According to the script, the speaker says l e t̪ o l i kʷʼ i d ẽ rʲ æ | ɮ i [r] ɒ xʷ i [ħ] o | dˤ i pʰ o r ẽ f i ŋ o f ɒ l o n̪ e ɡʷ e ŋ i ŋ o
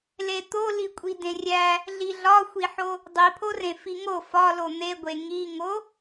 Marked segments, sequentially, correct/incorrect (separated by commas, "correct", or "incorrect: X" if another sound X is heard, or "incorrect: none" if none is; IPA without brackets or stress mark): incorrect: ɮ, correct